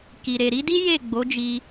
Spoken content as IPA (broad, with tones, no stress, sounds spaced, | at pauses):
k i˨ ɾ e˨ ɾ i˨˦ d i˦ j e˦˨ ɡ͡b o˨˦ d͡ʒ i˧